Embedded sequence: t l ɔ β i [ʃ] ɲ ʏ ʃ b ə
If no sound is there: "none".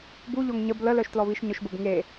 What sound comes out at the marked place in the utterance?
ʃ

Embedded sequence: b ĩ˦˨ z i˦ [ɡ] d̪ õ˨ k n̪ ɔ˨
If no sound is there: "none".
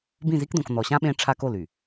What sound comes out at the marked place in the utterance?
k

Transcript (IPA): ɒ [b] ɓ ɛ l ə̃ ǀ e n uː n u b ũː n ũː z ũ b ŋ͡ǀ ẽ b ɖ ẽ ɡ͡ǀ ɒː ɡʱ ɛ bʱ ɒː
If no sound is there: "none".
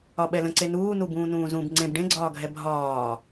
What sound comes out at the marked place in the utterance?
none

